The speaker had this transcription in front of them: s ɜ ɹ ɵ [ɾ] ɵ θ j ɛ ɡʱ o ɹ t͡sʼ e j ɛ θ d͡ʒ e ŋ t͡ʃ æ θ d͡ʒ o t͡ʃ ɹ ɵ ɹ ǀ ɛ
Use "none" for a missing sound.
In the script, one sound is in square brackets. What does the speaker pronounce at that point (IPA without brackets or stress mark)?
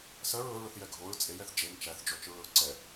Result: ɹ